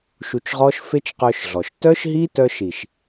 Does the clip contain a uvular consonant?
yes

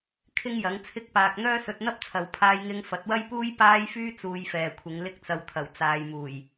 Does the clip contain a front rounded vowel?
yes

